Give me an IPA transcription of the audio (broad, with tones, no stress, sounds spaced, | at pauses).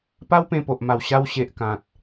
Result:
p a˦ w p ẽ˧ p o˨ ʔ m a˨˩ w ɕ a˧ w ɕ e˨ ʔ k ã˨ t̚